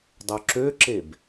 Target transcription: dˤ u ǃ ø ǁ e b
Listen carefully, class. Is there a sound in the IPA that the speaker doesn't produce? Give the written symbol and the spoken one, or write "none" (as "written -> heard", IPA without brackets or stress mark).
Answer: ǃ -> ǁ